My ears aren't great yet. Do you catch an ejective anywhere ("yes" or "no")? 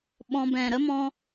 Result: no